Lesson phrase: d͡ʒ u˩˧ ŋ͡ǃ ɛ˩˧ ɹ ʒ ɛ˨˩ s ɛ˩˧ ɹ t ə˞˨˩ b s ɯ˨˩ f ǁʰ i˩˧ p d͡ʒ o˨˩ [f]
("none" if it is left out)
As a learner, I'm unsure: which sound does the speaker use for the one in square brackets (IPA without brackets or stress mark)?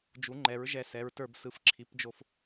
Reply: f